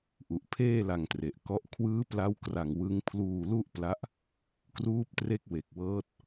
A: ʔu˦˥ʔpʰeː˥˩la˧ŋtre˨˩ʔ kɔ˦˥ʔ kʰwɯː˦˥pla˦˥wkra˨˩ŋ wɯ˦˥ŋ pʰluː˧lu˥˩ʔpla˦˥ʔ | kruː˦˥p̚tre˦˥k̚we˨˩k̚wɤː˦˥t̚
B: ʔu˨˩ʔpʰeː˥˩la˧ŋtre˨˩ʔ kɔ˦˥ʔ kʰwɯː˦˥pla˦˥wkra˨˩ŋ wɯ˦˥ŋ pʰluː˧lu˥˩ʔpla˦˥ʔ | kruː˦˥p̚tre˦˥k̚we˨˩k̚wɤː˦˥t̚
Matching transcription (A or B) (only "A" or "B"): B